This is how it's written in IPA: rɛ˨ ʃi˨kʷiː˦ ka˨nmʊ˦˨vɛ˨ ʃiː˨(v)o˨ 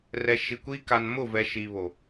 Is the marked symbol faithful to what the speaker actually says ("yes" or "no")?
no